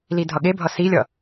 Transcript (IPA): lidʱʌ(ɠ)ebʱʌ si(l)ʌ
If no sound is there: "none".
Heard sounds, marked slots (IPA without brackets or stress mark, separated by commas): ɠ, lʲ